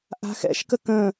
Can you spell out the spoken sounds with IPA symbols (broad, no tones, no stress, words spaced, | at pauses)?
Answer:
ʔa̤xɛ̰ʃkə kə̃